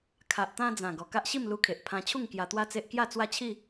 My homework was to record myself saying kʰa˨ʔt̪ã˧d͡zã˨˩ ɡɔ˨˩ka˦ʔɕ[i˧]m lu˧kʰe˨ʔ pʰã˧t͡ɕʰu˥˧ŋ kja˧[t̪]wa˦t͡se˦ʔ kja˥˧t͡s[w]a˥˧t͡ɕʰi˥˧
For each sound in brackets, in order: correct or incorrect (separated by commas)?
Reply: incorrect, correct, correct